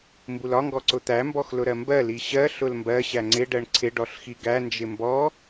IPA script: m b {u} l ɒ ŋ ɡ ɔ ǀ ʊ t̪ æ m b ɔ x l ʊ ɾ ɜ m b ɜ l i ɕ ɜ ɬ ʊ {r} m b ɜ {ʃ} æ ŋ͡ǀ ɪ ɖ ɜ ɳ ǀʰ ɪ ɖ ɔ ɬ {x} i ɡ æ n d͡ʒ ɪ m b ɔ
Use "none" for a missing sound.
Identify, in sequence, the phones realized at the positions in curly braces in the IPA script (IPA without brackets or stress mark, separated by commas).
u, l, ɕ, x